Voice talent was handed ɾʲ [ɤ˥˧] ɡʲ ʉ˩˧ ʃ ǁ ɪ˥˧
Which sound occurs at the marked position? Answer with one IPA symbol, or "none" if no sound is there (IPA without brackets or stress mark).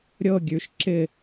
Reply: ɤ˥˧